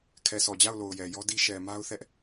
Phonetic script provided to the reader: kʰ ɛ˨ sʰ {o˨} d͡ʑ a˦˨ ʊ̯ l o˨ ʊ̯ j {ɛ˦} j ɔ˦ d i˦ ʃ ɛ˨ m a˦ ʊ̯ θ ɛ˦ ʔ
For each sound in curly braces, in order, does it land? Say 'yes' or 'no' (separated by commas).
no, no